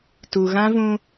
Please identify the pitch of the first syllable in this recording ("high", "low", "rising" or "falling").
low